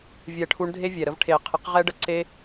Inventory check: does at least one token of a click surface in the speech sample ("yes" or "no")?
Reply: yes